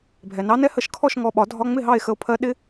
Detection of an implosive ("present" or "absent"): present